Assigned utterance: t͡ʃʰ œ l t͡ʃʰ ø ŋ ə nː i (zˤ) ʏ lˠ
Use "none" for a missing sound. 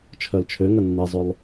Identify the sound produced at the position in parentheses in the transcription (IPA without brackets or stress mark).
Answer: zˤ